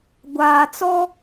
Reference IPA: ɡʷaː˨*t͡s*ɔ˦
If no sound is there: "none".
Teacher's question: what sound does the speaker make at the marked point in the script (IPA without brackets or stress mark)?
t͡s